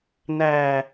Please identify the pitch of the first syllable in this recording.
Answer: low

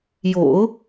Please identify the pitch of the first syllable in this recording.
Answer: low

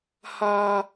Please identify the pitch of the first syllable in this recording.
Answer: high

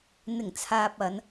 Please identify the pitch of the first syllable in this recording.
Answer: low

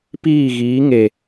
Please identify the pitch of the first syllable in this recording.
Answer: falling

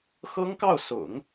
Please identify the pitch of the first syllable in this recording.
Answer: high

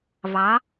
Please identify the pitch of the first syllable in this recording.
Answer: rising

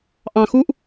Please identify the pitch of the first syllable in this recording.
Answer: low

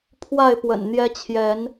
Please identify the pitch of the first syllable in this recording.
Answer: falling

